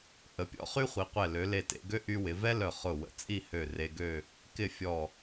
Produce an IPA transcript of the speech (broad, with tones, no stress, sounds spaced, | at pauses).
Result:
ʔ ə˩˧ pʲ ɔ̰˥ χ y˥ χʷ i˩˧ qʷ ɛ˧˩ l ø˩˧ l e˧˩ t ḛ˩˧ ɡ ø˥ ʔ y˧ w ɪ˩˧ v ɛ˥ l œ˧˩ χ ʊ˧˩ w ə̰˧˩ t͡sʼ i˥˧ h ø˧˩ r e˧ ɡ ø˥˧ | k ɪ˥˧ fʲ ɔ˧˩